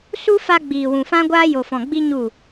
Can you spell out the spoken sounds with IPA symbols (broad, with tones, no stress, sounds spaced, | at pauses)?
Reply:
s u˦ f a˧ ɡ͡b iː˨ w ũ˨ f ã˦ ɡʷ aː˦ j o˨ f ɔ̃˨ ɡ͡b i˦ ɲ u˦˨